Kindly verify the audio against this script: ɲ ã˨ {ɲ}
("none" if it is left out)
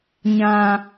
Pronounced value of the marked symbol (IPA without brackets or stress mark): none